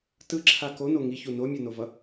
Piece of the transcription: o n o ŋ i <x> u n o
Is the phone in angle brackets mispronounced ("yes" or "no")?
yes